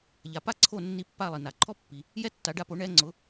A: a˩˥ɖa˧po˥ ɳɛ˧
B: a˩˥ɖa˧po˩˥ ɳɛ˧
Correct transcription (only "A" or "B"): B